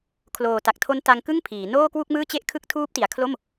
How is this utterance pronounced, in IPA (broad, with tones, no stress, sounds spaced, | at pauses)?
kʰ l oː˨˩ t a˨˩ k̚ tʰ o˦˥ n t a˧ ŋ k ɯ˥˩ ŋ pʰ iː˩˦ n oː˥˩ k w u˥˩ k̚ m ɯː˥˩ t͡ɕ e˥˩ ʔ kʰ ɯ˥˩ k̚ tʰ uː˦˥ p̚ t i˩˦ a̯ kʰ l o˥˩ m